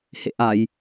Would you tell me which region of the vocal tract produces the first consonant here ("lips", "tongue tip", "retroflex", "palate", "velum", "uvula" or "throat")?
throat